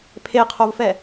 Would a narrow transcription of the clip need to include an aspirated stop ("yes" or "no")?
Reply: yes